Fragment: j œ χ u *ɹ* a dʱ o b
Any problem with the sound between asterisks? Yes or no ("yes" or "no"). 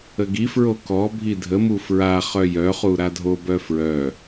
yes